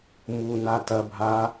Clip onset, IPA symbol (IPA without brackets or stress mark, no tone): m